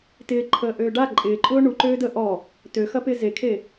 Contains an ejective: yes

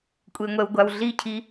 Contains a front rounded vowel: no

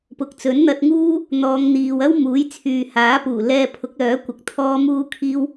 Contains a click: no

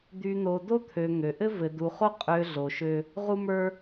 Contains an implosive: no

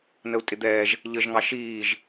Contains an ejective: yes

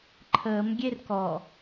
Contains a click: yes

